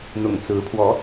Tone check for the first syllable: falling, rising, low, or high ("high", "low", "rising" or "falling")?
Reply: low